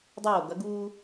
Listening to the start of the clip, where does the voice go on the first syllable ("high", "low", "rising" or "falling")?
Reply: falling